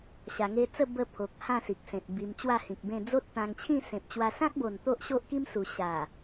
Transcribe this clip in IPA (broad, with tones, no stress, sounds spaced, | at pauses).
ɕ a˧ ŋ e˦ t͡s ə˥˧ b ə˧ pʰ o˨ k̚ h ã˥˧ s i˨ k̚ s ẽ˨ t̚ b i˧ m t͡ɕ w a˥˧ h ĩ˨ k̚ b ẽ˥˧ d͡z o˦ t̚ t̪ ã˧ ŋ t͡ɕʰ ĩ˥˧ s ẽ˨ p̚ t͡ɕ w a˧ s ã˦ k̚ b o˨˩ n t̪ o˦ ʔ ɕ o˦ ʔ k i˦ m s u˨˩ ɕ a˨˩